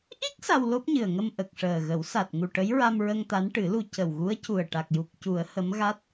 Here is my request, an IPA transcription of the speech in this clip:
ʔ i˦˥ k̚ s a˧ w l o˦˥ p̚ ɲ ɨ˨˩ ə̯ ŋ ə˧ m ʔ ə˨˩ k̚ ʂ əː˨˩ ɣ ə˨˩˦ w s a˨˩ t̚ ŋ u˨˩ ʈ ə˧˥ j ɹ a˧ m ɹ ə˧ ŋ t̪ a˧˥ n ʈ ɨ˨˩˦ l u˧ c ə˨˩ w ɣ u˧˥ ə̯ c u˨˩ ə̯ ʈ a˨˩ k̚ j u˨˩ k̚ c u˨˩˦ ə̯ h ə˧˥ m ɣ a˦˥ t̚

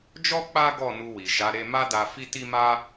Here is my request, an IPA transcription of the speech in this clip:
d͡ʒ ɔ˦ k͡p a˦ ɡ ɔ˦˨ n u˧ w i˨ ʃ a˨˦ ɾ e˦ m a˦ d a˧ f i˦ t i˦ m a˦

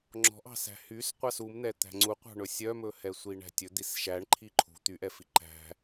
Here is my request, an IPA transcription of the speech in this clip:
ŋ͡ǁ ɔ̤ ʔ ɑ̤ s æ̤ h y s qʷ ɑ s u m n̪ ɛ t̪ æ̤ ŋ͡ǀ u qʷ ɑ̤ ɳ ɵ sʲ œ m ɵ h ɛ sʷ i ɳ æ̤ tʲ ɵ d̪ i s ʃ æ ɳ ǃʰ i ǃʰ ṳ t̪ y ʔ ɛ f i ǃ æ̤

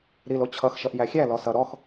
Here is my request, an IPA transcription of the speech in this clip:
ɾ i l o t͡ɕʰ ʌ x ʃ ʌ ʔ j æ xʲ æ l ɔ s ʌ ɾ ɔ x

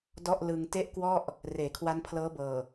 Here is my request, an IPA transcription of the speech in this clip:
d ɔ˥˩ ʔ l ɯ˧ ŋ t e˥˩ ʔ k w ɔ˥˩ ʔ | r eː˩˦ kʰ w a˦˥ n pʰ l ɤː˦˥ b ɤː˨˩

